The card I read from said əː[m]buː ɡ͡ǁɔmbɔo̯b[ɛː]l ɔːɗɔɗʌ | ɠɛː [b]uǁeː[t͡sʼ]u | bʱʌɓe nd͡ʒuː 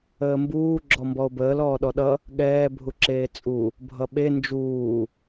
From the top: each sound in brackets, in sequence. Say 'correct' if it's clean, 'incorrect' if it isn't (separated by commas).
correct, incorrect, incorrect, correct